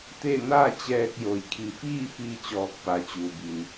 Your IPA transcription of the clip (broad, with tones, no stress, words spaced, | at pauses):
t̪e˥˨ naː˥˨t͡ɕɛː˧k̚ jo˩jkʰi˩˧fiː˥˨fi˧ t͡ɕɔː˧k̚pa˩t͡ɕuː˩bi˩n